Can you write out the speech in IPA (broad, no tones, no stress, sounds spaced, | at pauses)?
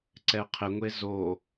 ǀ ɛ qʰ ɪ ŋʷ e z o